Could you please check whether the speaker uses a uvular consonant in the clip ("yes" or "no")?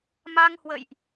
no